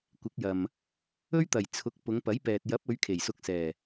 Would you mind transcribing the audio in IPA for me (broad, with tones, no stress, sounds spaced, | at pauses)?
kʷ ɪ˨˥ k̚ j ɐ˨ m | ɵ˥ ɥ t̪ ɐ˨˩ j t͡sʰ ʊ˨˥ k̚ p ʊ˨˧ ŋ p ɐ˨˥ j p ɛː˨ t̚ j ɐ˨˥ p̚ ɵ˨˧ ɥ kʰ e˨˩ j s ʊ˧ k̚ s ɛː˨˩